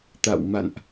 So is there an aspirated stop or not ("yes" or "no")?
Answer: no